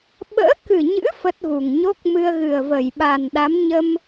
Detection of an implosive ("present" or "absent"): present